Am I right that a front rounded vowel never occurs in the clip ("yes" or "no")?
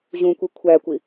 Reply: yes